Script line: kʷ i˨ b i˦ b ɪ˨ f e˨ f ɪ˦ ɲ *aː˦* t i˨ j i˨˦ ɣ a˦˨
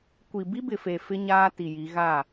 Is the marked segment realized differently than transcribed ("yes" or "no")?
no